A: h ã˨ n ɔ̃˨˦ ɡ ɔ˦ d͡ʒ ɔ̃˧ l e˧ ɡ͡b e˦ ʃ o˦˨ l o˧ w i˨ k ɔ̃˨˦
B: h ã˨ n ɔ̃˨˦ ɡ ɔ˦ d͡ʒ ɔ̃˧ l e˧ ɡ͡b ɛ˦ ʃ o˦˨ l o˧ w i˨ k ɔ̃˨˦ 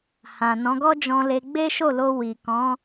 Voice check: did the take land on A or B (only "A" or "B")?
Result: A